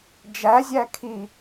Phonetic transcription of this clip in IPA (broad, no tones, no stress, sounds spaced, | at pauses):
d͡ʒ æ zʲ æ kʰ i